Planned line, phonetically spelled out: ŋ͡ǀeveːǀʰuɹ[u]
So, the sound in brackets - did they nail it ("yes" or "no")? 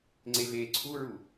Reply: yes